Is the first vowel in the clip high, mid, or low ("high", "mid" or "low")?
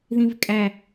high